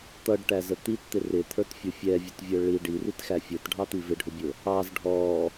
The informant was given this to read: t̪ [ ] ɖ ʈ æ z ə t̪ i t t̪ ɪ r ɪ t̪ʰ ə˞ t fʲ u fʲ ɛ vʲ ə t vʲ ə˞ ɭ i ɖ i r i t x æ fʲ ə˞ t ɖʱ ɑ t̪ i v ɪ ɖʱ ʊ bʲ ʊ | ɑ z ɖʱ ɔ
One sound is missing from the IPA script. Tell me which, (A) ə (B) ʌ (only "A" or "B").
B